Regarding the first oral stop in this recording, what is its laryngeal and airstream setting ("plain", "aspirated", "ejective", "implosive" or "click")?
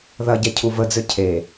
plain